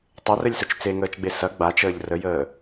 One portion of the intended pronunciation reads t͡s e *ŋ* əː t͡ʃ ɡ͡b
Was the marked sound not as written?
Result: no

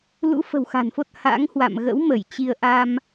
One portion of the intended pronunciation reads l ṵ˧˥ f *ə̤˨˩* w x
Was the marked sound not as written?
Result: no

